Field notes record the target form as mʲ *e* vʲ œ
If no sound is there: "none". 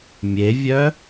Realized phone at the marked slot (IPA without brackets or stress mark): e